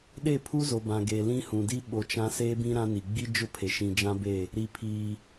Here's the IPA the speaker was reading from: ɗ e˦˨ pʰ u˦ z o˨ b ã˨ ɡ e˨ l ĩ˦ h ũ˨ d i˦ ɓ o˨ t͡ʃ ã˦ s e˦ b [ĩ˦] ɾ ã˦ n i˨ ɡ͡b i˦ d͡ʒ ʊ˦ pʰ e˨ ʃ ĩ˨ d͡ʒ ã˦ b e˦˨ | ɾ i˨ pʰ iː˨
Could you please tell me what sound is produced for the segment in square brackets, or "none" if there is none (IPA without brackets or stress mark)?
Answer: ĩ˦